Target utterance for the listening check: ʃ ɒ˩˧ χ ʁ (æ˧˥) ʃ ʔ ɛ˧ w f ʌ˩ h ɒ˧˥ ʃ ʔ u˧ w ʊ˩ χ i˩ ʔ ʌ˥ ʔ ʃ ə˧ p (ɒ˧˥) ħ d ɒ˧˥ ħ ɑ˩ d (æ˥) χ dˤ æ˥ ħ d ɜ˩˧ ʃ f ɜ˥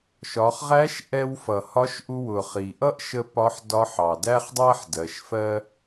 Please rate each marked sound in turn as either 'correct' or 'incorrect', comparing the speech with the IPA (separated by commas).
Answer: correct, correct, correct